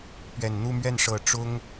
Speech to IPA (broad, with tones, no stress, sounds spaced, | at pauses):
p ɥ ɛ˨˩ n n̪ u˥˧ m ɥ ɛ˥˩ n ʂ ɤ˨˩ ʈ͡ʂ ʊ˥ ŋ